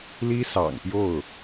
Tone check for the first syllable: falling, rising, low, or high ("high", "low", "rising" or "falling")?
high